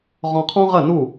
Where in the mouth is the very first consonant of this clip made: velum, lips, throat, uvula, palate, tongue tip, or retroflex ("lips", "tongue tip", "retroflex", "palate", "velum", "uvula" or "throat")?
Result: uvula